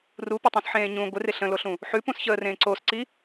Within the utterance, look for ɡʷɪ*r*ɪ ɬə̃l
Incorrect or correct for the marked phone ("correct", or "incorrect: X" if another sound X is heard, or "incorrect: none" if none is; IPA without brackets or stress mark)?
correct